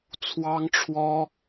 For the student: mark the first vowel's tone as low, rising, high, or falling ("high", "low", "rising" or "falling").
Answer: high